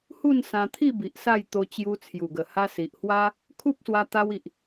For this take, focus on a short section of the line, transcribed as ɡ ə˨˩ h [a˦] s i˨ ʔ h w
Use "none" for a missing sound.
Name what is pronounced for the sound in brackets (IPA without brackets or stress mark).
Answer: a˧